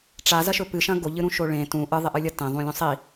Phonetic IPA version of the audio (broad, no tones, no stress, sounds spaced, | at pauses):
ʈ͡ʂ a z ɐ ʃ ɵ p ɨ ʃ ɐ̃ ɡ o ʎ ɨ ɾ ũ ʃ o ɭ ẽ t ũ ʔ ɨ ðˤ e ʔ ɨ lʲ ɐ t ẽ ðˤ ũ lʲ ũ sˤ i